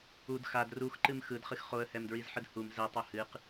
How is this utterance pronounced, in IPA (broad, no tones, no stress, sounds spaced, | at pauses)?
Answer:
u d x a d r u x ǃ ɨ m x ɯ d χ ɨ x χ o ə̯ h ɛ m d ɹ i z ħ ɯ d h u m z ɛ tˤ o h ɨ q